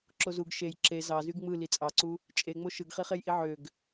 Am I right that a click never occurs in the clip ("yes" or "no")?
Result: no